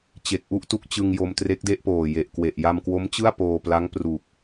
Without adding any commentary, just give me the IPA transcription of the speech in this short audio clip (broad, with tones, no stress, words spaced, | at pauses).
t͡ɕe˨˩k̚ʔu˥˩ʔtu˥˩k̚t͡ɕɯ˧ŋ jo˧mtre˦˥k̚de˥˩ʔpoː˨˩ je˨˩ʔkwe˨˩ʔ ja˧mkwo˦˥m t͡ɕɯ˥˩a̯ poː˧pla˦˥ŋ pru˨˩k̚